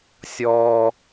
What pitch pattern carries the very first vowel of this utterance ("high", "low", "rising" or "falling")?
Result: high